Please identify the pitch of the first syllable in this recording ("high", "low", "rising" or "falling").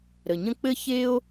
low